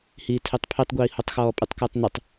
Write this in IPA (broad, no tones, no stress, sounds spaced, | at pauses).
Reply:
h iː tʰ e tˤ pʰ i tˤ ɡʷ iː h o tˤ x ɔː pʼ ɪ tˤ k ɪː tˤ n ɪ tˤ